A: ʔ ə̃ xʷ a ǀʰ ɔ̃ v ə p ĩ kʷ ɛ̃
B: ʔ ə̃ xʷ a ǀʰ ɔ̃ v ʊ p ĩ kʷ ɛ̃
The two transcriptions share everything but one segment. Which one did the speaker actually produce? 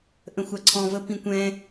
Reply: A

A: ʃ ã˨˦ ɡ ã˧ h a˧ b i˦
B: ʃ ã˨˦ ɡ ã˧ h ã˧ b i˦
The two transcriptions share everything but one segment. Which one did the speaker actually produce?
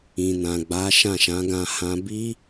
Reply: B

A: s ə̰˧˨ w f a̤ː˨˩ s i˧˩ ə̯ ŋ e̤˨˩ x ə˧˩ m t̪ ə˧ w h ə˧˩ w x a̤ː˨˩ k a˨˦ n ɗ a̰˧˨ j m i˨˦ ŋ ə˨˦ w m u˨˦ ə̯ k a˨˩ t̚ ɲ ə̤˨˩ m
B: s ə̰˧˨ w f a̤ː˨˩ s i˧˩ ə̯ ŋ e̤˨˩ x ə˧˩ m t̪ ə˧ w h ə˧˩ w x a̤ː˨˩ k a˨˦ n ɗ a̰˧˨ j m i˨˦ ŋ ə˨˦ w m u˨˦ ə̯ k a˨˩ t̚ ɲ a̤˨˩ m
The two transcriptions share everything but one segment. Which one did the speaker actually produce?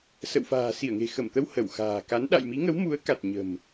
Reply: A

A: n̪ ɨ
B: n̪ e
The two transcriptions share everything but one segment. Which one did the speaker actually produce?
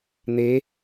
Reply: B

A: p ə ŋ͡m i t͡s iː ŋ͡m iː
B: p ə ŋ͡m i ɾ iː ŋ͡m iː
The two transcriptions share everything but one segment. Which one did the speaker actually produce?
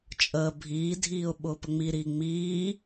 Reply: B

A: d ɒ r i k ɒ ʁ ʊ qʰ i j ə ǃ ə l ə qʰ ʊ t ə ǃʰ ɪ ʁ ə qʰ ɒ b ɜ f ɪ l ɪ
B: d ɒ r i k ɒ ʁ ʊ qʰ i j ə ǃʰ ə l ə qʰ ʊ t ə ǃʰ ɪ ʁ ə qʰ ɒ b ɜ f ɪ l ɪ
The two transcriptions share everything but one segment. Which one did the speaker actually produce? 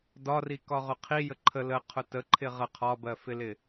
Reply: B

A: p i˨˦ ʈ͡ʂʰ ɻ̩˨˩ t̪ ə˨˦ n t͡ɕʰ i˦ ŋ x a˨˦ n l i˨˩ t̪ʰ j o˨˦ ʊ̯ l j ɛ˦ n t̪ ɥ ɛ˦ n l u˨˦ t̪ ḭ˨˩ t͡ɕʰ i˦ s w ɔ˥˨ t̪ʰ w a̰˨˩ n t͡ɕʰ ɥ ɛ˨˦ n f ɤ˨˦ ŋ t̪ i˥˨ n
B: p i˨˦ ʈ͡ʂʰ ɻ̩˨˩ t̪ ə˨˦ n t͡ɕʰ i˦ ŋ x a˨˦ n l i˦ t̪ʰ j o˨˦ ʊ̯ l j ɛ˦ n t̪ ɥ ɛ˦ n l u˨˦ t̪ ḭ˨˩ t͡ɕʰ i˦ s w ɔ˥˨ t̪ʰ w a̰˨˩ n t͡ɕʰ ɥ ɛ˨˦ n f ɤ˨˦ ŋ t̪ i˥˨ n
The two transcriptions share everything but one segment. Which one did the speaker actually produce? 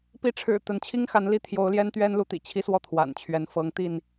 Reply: B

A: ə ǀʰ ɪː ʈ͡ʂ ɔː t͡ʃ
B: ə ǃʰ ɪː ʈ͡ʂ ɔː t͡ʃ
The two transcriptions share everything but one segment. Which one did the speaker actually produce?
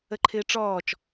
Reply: B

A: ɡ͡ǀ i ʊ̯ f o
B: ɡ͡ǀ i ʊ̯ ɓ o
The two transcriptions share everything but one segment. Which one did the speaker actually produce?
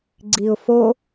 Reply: A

